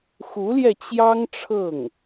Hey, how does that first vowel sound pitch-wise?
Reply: rising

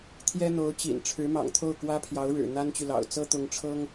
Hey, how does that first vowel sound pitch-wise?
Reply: high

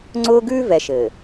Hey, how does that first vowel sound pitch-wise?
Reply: high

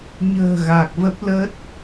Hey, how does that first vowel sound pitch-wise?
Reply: low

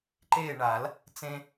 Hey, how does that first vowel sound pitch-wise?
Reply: falling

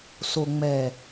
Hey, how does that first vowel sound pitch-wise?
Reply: low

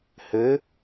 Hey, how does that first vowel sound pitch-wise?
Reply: rising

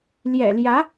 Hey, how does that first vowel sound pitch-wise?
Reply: low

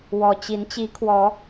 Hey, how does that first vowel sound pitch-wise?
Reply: low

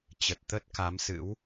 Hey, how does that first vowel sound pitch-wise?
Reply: low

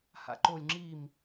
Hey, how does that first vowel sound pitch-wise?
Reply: low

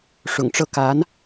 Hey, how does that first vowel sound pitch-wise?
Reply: low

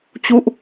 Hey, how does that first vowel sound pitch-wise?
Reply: falling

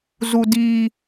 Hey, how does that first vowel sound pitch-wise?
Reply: high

